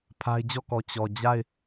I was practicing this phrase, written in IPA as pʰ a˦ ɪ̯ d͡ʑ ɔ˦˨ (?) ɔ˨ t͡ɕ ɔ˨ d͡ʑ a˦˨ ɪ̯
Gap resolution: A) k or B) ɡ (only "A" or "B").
A